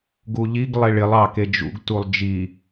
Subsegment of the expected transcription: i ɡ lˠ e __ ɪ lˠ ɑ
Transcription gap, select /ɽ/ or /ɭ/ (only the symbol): ɭ